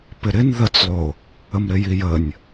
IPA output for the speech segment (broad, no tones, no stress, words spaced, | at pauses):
pɪɾɪn ðət͡slˠo | əmɾɪjijənʲ